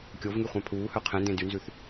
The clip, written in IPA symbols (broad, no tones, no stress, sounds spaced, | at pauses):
kʲ o v ŋ y χʷ ɑ̃ pʰ uː h œ qʰ ɛ̃ n d ẽ d y n z ʉ θ